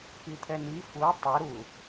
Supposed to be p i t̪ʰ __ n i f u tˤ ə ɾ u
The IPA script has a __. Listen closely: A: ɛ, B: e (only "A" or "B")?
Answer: A